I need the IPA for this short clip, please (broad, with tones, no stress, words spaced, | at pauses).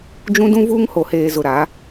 d͡ʒũ˦dũ˦ vuː˦ŋ ho˨heː˨ zʊ˨ɾa˨˦